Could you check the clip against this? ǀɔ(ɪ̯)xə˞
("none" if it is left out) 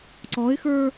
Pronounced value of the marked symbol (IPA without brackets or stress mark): ɪ̯